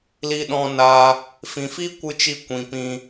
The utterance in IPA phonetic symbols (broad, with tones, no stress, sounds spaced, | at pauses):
l i˧ ɗ ɔ̃˧ n a˧ | f ĩ˨ f i˦ kʷ ɨ˧ t͡ʃ i˧ kʷ ĩ˨ p ĩ˧